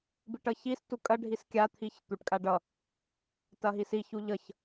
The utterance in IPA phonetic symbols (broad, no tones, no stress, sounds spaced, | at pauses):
b i ʈ ʌ ç i s t u kʼ ɐ ɖʱ i s kʲ a t̪ʰ i ç t̪ u ʈ kʼ a ɖ ʌ | t ɐ ɦ i s i ç u ʎ ʌ ç